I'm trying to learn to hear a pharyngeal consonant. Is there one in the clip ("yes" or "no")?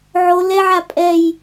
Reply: yes